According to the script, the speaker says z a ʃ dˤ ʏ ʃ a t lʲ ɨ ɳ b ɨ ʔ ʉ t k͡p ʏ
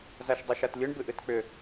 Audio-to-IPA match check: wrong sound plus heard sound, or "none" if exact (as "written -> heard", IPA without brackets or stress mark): ʉ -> ɨ